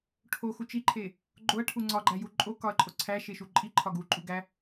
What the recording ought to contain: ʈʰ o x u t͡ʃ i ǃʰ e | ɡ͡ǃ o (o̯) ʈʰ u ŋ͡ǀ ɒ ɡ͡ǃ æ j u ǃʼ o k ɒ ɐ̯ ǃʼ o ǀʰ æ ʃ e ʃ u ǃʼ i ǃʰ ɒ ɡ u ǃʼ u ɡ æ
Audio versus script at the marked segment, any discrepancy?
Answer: yes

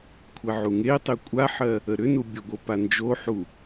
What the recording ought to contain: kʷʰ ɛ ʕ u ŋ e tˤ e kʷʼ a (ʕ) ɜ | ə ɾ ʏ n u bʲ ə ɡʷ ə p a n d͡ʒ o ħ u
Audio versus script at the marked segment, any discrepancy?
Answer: yes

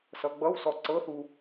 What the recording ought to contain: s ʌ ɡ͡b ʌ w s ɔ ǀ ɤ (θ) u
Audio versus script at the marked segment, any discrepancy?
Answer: no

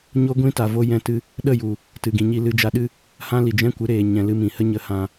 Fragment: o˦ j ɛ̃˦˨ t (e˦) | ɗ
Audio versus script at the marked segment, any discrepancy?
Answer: yes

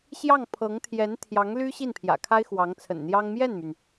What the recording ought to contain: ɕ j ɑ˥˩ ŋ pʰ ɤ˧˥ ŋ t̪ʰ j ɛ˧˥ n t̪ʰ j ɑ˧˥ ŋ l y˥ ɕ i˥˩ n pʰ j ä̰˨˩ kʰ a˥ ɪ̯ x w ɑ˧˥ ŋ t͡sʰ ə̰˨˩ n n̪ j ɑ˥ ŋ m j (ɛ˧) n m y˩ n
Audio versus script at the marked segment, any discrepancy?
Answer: yes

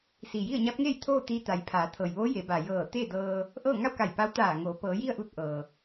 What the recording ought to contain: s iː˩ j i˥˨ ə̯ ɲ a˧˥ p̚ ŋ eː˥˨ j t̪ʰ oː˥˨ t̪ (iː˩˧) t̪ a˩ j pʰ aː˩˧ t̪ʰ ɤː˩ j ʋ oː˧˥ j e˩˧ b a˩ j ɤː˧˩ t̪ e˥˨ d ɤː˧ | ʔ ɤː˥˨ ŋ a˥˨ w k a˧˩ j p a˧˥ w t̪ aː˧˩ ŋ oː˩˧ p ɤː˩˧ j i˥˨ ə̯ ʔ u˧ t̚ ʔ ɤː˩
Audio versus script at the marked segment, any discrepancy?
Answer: yes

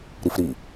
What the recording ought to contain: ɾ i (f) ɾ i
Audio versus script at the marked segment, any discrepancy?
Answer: no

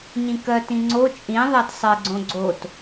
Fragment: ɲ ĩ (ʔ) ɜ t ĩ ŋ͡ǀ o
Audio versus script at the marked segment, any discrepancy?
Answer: yes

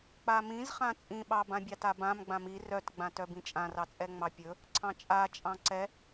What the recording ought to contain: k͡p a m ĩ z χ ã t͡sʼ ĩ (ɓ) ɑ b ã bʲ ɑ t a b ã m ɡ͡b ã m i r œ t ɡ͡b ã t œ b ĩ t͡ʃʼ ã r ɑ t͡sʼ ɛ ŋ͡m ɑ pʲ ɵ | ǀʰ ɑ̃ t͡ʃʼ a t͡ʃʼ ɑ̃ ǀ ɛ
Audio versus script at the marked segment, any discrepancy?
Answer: no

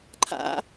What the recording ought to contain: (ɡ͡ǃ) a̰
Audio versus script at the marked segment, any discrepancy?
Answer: yes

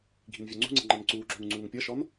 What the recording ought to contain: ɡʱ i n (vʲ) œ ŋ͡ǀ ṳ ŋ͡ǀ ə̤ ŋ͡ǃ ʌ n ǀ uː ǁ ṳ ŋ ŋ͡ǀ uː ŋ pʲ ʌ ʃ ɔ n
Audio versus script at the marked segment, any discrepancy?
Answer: no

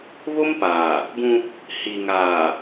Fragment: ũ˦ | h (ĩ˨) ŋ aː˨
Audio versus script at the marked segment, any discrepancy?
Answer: yes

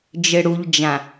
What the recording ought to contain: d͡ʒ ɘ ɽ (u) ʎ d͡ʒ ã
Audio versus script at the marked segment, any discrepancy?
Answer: no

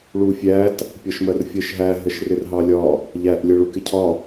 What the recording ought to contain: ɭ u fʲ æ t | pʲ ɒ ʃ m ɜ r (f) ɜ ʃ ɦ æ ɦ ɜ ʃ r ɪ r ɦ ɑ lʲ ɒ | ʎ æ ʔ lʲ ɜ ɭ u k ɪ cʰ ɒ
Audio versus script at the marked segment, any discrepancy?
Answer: yes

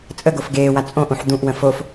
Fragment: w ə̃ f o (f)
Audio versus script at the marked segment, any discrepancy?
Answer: no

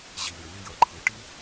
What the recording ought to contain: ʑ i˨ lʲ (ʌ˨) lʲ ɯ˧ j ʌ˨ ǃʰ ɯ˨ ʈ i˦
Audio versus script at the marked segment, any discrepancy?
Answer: yes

